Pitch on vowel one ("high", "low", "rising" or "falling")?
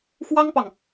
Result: high